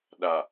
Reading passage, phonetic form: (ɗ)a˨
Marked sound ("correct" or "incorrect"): correct